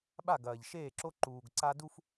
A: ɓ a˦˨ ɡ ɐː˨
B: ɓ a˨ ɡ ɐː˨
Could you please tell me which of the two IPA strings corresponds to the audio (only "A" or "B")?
A